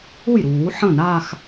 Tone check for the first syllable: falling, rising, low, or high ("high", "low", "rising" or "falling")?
falling